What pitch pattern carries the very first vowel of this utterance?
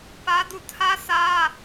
high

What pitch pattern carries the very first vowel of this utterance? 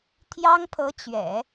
high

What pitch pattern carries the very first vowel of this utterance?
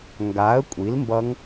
rising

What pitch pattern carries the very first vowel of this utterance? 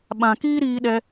low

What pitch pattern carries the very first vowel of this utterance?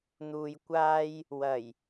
low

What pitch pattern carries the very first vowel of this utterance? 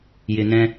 low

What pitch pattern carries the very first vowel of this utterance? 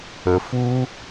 low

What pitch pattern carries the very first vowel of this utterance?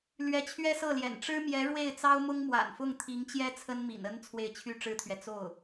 rising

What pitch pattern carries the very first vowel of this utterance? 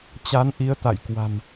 rising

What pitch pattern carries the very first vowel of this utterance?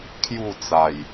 falling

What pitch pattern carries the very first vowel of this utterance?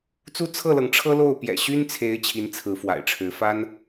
high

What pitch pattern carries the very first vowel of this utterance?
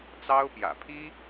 high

